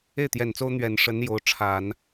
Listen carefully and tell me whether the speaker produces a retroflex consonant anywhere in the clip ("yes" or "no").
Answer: yes